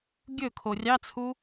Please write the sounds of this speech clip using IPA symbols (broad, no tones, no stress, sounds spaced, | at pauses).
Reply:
ɡʲ ɵ kʰ o rʲ ɑ t͡sʰ u